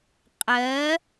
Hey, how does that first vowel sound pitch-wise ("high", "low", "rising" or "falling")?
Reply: rising